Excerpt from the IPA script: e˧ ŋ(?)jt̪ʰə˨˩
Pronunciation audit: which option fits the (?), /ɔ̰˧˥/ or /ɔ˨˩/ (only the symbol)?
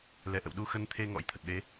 ɔ̰˧˥